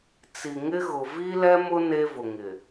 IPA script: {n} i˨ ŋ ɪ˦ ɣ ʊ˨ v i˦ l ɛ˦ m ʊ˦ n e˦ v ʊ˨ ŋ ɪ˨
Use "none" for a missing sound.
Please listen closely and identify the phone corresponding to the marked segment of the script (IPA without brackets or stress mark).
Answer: t͡s